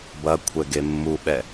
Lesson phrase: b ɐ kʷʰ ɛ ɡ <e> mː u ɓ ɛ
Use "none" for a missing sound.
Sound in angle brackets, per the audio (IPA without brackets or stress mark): e